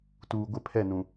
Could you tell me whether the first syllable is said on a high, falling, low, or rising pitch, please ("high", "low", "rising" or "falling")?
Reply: low